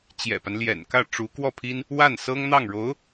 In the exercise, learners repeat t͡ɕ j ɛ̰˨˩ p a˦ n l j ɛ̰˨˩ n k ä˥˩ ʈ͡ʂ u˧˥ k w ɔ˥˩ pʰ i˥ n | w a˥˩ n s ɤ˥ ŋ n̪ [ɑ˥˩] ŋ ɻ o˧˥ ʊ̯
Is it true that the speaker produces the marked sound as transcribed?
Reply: yes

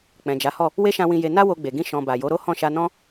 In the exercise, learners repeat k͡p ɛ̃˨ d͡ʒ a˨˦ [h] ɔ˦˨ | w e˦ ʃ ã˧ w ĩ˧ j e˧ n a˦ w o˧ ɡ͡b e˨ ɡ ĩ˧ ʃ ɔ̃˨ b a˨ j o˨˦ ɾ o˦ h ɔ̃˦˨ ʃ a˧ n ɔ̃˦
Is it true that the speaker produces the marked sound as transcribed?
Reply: yes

